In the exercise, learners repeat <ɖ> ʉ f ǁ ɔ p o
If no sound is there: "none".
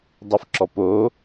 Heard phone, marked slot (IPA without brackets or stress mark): dˤ